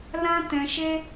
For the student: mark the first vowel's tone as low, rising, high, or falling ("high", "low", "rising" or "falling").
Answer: high